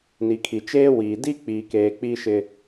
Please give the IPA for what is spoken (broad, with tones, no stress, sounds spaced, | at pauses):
n i˨ kʰ i˨ t͡ʃ eː˦ w iː˨ d i˦ k͡p iː˨ k eː˨ k͡p i˦ ʃ ɪ˦